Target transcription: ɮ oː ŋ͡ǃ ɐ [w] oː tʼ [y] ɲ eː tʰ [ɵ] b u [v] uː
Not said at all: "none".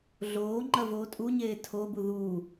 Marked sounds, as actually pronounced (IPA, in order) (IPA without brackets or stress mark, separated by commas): v, u, o, ð